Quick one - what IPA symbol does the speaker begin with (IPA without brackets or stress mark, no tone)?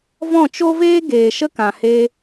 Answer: v